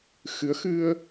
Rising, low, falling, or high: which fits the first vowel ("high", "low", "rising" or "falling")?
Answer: rising